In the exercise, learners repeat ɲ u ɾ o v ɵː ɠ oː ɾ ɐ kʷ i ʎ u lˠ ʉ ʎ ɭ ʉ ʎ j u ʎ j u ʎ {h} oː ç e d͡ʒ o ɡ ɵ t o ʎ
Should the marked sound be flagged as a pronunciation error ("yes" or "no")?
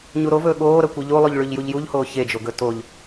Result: no